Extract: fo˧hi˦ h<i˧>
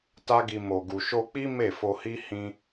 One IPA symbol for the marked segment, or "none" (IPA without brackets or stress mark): ĩ˧